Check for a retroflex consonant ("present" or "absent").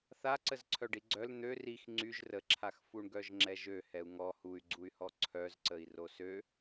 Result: present